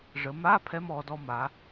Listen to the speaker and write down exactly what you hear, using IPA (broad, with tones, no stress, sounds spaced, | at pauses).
ʐ ə˩˧ m a˧˥˧ pʰ ɛ˧ m ɔ˩˧ d ɔ˧ m a˩˧